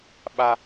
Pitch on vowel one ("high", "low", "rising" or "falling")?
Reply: high